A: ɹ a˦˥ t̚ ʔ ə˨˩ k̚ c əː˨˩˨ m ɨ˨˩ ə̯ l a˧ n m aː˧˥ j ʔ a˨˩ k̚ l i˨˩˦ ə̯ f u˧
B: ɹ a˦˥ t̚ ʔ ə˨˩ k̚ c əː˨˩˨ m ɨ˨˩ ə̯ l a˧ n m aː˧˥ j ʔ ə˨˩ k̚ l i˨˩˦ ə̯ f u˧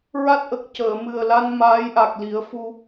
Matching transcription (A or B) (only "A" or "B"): A